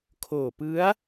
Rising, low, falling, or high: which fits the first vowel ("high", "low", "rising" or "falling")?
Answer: low